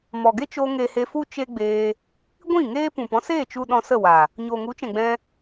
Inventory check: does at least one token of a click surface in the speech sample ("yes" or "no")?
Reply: no